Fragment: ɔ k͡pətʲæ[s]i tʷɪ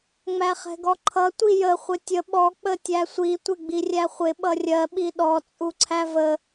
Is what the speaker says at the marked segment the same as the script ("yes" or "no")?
no